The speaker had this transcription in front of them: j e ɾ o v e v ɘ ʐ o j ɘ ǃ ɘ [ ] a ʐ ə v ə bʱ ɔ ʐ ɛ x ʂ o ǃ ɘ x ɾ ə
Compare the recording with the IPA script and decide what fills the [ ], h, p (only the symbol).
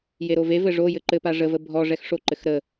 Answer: p